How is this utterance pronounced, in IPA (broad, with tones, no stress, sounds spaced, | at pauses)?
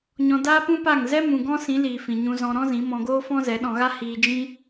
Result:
ɲ ɔ̃˧ d aː˦ p ũ˦ p a˦˨ ŋ z ɛ˦ m ũ˧ ɡ ɔ̃˦ s ĩ˨˦ l iː˨ f ĩ˨ ɲ ũ˧ z ɔ̃˧ ɾ ɔ̃˦ z ĩ˨˦ m ɔ̃˧ ɡ oː˦ f ɔ̃˦ z ɛ˨˦ ɗ ɔ̃˧ ɣ a˦ h iː˧ d͡ʒ ĩ˦